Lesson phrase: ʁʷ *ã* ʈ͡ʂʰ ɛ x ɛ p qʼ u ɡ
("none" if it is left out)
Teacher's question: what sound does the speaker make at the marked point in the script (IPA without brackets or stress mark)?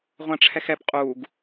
ã